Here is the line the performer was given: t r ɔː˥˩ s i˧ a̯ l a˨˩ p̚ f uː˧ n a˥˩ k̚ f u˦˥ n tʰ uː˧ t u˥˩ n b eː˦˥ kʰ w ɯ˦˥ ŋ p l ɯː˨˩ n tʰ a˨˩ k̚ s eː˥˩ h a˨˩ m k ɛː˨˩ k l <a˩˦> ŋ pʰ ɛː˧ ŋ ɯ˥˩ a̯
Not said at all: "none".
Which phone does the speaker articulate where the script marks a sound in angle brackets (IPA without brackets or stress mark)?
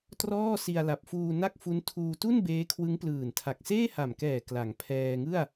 a˩˦